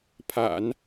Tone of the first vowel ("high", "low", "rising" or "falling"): low